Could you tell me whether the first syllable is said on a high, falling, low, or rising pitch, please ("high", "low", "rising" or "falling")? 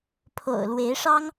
low